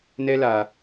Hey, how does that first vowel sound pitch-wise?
high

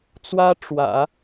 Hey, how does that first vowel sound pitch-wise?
high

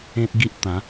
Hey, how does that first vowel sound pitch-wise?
high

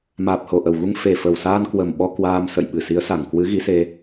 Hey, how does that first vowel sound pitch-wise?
low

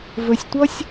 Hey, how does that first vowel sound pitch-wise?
low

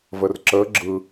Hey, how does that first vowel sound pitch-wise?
low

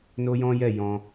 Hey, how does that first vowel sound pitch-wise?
high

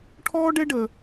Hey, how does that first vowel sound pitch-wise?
high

